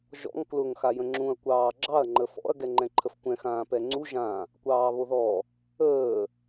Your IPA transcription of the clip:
ʒ ɔ̰ ŋ k l ʊ ŋ x a j ə̃ ŋ͡ǁ ũ ɐ̯ kʷ ɑː ɡ͡ǁ ɑ ɐ̯ ŋ͡ǃ ə f ɔ̰ ɐ̯ ɡ ɛ ŋ͡ǃ ɛ̃ ǃʰ ə f kʷ ɛ̃ x ãː p ɛ ŋ͡ǀ u ʒ ã | kʷ ɑː β o ð ɔ | əː

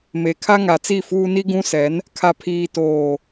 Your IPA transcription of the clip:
m e˨ kʰ a˦ ŋ a˨ t͡s i˦˨ f uː˦ n i˦ ɡ ũ˦ s ɛ˨˦ n | kʰ a˨ pʰ iː˨ t oː˨

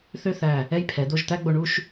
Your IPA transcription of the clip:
θ ø˥˧ θ æ˧˩ | ɛ˥ j pʰ ɛ˩˧ d̪ o˥˧ ʒ t̪ æ˥ ɡ͡b o˧ ɳ u˥˧ ʃ

